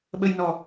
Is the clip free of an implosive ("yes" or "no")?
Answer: no